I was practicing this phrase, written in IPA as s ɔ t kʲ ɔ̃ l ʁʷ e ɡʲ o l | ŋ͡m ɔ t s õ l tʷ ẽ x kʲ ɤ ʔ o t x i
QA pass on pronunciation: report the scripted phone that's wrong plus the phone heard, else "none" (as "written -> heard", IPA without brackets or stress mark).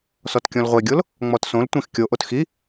ɤ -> o